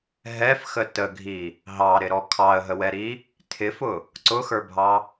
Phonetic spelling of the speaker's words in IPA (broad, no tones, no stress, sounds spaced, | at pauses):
ɦ ɛ f x ə t ə ɡʱ i | ɦ ɑ ɾ ɪ ɾ ɔ kʰ ɑ ə̯ ɦ ə w ɛ ɾ i | tʰ ɪ f ʊ | ǀ ʊ x ə˞ bʱ ɑ